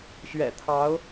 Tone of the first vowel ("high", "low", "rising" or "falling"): low